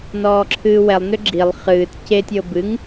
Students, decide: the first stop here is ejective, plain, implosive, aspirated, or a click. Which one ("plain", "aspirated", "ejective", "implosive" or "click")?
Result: click